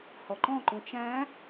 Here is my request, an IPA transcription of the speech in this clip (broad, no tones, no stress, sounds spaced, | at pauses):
h ɔ ǃ ɔ̃ ǃ ũ t͡ʃ æ̃